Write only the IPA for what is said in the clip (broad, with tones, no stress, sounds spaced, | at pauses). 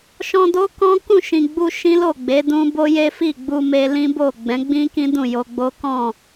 ʃ ɔ̃˧ d o˦ k ɔ̃˦ k ũ˦˨ ʃ ĩ˨ ɡ͡b u˧ ʃ ĩ˦ l o˦˨ ɡ͡b e˨˦ d ũ˦ b o˦ j e˦ f i˦˨ ɡ͡b u˧ m e˧ l ĩ˦ b o˦˨ ɡ͡b ɛ̃˨˦ ɡ͡b ĩ˦ k ĩ˦ d ũ˦˨ j o˧ ɡ͡b o˦ k ɔ̃˦˨